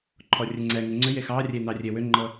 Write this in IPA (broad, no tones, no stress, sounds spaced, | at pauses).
ǃʰ ɔ rʲ ɛ ŋ͡ǀ ɛ ŋ e ŋ͡ǀ ʏ j e x ɑ rʲ e n ɑ rʲ e w ʏ ŋ͡ǃ ɤ